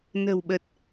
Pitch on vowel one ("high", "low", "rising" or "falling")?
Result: low